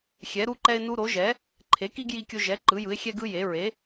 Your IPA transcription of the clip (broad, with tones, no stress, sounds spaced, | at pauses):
xʲ ɛ˩˥ ɾ u˦ ǃ ɛ˦ ɪ̯ n u˦ ɾ o˩˥ ʒ ɛ˩˥ | ǃʰ e˩˥ k i˦ ɡ j i˦ kʲ o˦ ʒ ɛ˩˥ ǃ ɯ˩˥ j ɯ˩˥ ɪ̯ xʲ ɛ˦ ɡ ɯ˦ j e˩˥ ɹ e˩˥